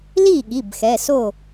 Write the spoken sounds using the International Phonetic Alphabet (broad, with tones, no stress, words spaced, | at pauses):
li˥˩ɠi˩˧˩b xɛ˩˧˩so˥˩